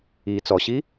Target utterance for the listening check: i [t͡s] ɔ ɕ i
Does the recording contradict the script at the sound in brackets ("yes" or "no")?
no